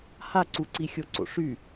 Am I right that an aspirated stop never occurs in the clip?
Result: yes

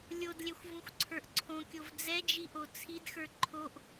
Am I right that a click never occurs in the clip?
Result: no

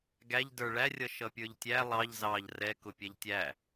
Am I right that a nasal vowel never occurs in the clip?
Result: yes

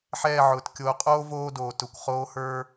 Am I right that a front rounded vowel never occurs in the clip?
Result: yes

